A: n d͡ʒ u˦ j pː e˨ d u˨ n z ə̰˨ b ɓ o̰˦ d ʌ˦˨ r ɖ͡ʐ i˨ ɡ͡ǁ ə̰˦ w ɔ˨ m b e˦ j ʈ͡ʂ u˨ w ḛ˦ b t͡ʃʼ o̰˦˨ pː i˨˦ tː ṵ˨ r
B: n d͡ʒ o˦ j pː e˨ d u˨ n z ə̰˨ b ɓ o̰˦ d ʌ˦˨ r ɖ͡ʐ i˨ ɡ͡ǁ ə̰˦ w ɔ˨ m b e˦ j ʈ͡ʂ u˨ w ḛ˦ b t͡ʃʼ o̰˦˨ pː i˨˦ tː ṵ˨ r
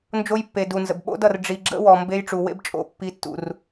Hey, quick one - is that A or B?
B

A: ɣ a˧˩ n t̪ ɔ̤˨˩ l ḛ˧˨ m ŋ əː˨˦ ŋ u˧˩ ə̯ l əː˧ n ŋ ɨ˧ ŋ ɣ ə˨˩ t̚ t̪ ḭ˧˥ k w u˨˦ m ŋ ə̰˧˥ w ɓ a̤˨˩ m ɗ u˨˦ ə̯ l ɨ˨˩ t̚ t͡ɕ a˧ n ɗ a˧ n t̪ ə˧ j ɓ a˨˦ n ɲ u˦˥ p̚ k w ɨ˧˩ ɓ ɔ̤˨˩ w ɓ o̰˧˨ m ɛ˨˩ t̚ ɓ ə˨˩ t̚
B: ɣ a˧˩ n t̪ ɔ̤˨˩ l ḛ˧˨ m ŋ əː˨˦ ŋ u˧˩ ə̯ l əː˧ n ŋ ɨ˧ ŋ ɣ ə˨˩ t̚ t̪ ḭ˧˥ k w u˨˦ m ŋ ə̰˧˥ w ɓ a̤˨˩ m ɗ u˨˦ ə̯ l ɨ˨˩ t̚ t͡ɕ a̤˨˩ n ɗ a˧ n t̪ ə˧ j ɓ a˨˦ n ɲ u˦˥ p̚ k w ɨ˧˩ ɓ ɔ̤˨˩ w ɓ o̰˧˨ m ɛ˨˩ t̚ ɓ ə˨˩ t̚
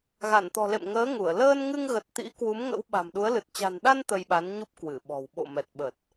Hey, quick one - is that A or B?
B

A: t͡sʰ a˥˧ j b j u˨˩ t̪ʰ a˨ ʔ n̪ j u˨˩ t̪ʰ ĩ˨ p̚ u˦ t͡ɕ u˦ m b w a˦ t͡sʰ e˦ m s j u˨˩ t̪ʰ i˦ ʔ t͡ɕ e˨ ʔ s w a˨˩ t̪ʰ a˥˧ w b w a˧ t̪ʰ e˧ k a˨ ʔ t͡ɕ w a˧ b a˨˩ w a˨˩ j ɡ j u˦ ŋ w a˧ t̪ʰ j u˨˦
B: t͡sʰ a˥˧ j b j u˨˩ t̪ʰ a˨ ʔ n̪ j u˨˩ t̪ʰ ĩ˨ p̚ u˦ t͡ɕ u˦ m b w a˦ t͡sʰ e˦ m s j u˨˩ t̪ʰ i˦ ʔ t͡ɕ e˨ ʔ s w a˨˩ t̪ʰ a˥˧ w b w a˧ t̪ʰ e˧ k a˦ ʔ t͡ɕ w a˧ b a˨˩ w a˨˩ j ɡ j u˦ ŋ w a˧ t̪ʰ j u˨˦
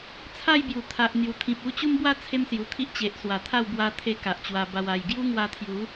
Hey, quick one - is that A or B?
A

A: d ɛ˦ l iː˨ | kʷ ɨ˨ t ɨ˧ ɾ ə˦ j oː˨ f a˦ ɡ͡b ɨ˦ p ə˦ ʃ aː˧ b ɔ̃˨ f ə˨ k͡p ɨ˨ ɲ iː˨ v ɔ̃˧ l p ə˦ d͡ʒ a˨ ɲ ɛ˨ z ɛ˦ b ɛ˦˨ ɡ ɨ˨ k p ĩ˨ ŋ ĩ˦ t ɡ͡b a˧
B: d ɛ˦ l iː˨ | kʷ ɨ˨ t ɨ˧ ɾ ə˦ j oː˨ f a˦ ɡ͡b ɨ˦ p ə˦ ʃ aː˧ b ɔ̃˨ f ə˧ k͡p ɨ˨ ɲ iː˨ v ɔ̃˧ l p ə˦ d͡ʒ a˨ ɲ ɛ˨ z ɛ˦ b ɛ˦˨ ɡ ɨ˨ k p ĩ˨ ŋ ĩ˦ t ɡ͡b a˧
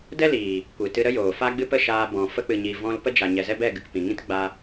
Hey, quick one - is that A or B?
B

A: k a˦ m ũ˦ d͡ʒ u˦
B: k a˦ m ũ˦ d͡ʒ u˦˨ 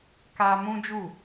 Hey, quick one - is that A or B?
B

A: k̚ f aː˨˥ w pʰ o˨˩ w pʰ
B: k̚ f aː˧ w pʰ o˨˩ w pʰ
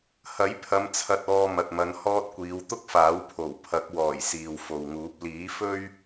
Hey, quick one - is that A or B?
A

